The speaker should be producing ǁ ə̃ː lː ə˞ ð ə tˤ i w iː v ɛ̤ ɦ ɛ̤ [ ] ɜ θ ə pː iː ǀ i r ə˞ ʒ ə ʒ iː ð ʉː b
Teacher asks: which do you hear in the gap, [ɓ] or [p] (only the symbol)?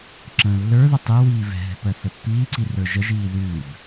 p